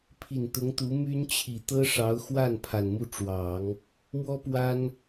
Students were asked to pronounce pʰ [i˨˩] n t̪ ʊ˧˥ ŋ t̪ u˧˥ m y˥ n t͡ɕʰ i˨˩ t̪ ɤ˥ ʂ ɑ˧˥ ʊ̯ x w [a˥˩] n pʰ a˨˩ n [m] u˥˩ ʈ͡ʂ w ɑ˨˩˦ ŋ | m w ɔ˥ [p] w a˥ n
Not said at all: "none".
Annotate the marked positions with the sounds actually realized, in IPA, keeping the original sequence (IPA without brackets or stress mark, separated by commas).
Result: i˨˩, a˥˩, m, p